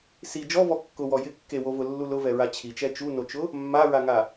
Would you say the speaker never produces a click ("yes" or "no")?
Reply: yes